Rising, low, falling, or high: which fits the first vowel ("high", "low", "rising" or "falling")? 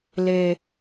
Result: high